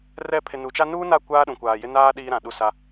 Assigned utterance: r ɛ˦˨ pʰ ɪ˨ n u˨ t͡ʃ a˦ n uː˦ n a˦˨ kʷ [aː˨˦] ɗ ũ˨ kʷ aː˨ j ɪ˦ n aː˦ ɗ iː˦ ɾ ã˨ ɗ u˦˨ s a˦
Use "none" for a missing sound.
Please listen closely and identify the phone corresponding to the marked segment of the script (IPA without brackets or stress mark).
aː˦